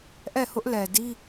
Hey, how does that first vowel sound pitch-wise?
falling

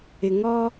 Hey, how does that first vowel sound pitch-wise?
low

